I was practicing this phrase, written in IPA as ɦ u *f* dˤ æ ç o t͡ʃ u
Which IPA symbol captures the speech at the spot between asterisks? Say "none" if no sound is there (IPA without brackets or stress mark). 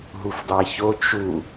f